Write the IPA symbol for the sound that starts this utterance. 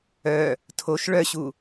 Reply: œ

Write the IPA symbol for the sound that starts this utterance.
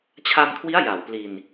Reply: t͡ɕʰ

